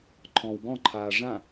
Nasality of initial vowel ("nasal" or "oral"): nasal